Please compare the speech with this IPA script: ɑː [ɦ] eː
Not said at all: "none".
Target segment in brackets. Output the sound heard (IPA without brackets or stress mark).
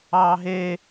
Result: ɦ